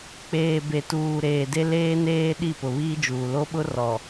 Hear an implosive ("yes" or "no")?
yes